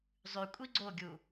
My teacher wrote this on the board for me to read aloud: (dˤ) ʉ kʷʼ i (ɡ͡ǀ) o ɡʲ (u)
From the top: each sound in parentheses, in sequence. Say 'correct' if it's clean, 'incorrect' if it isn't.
incorrect, correct, correct

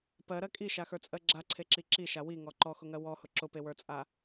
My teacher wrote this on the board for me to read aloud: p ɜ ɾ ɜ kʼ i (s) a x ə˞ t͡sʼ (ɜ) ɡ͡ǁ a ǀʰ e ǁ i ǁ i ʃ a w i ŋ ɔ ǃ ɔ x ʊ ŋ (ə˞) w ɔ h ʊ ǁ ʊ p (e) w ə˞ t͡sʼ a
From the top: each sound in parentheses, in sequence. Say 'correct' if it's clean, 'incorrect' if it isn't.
incorrect, correct, incorrect, correct

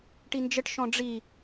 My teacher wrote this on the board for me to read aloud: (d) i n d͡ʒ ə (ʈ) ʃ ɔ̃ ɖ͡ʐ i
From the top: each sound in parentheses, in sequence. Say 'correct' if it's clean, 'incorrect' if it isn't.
incorrect, correct

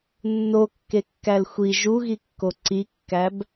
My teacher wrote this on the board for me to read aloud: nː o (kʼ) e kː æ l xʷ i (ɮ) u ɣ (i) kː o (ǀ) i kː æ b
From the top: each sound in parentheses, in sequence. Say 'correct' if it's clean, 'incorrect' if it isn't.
incorrect, incorrect, correct, correct

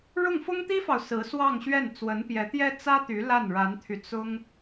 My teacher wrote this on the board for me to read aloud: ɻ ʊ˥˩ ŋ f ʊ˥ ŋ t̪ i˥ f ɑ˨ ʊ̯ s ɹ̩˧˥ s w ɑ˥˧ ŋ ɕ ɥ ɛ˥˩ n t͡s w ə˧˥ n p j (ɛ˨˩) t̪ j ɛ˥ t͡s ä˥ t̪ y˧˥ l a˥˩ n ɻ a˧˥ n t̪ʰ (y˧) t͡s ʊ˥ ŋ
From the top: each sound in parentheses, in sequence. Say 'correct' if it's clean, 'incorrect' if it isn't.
incorrect, correct

